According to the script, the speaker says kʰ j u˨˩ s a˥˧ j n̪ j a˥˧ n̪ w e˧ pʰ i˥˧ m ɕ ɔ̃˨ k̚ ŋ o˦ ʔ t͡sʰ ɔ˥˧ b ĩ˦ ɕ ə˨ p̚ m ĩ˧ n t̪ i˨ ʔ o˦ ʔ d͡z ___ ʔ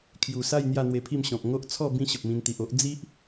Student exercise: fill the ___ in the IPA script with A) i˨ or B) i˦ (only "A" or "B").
B